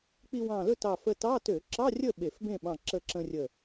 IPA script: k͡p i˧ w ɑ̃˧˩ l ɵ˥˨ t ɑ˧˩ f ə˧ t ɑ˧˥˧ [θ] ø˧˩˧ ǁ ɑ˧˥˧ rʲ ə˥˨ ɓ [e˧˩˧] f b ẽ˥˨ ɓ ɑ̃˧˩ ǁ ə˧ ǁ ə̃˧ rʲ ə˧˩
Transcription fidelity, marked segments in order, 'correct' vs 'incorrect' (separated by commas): incorrect, correct